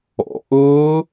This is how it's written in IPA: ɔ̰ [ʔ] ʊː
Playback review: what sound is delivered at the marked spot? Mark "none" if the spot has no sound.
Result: ʔ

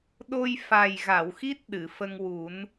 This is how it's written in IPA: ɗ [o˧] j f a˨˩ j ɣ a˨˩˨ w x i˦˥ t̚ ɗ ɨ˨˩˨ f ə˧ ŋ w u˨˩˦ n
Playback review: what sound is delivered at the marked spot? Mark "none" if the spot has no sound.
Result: o˧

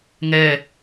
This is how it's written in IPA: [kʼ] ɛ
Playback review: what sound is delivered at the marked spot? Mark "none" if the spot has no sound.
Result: ŋ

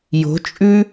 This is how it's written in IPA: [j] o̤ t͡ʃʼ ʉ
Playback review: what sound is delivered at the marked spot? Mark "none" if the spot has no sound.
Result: j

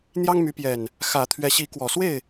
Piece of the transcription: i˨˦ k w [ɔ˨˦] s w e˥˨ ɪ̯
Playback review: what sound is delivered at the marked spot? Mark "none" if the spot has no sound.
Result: ɔ˨˩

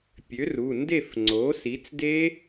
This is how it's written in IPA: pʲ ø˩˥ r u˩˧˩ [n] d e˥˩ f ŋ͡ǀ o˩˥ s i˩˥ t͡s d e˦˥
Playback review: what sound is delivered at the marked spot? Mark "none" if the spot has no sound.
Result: n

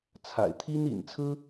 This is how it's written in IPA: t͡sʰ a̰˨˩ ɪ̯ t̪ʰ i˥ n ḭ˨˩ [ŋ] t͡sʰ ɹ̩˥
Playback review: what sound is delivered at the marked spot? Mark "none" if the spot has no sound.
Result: n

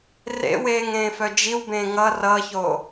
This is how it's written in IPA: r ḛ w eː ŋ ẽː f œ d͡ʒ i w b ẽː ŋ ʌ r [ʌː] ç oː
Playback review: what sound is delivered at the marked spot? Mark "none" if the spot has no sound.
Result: ʌː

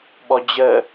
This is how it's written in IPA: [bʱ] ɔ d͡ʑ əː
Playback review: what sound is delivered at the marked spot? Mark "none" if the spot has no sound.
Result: ɓ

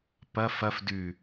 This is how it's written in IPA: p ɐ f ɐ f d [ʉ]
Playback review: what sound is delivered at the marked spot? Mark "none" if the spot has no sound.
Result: ʉ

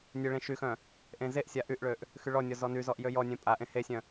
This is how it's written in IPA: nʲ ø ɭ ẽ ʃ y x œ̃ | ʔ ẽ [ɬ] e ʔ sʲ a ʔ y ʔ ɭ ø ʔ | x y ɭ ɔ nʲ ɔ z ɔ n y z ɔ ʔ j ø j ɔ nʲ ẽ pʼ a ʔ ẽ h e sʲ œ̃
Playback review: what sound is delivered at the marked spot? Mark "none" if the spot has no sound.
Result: z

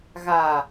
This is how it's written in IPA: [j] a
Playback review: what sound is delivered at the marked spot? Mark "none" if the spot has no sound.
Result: ɣ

